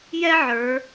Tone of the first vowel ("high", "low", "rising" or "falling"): high